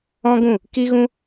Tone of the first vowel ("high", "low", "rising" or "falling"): high